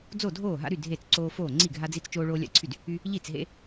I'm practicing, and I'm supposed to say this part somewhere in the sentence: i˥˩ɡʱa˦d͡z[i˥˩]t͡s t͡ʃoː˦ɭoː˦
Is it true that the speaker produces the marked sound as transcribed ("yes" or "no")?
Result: no